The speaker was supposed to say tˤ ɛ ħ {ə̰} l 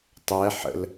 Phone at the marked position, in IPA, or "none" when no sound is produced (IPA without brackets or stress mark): ə̰